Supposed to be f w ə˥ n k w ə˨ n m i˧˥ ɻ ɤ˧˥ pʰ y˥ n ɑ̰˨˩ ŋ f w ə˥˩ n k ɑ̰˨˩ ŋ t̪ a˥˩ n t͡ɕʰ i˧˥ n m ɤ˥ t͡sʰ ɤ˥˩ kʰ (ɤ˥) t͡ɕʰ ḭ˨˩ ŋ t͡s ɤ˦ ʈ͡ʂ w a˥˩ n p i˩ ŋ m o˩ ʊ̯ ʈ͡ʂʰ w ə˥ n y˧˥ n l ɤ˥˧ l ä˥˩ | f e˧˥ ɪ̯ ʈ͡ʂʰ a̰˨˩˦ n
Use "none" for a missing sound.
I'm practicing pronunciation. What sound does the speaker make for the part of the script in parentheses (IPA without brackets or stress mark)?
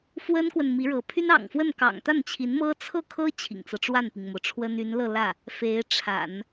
ɤ˥